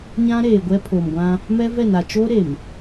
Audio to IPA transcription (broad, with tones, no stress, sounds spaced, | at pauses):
ɲ ã˦ ɾ eː˨ ɡʷ ɛ˦ pʰ o˨ m ɡʷ ã˦ | m ɛ˦ v ɛ˦˨ n a˨ t͡ʃ oː˦ ɾ e˨ m